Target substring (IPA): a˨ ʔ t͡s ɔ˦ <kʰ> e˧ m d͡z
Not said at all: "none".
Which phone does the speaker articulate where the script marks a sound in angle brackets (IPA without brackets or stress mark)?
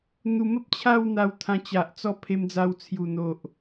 pʰ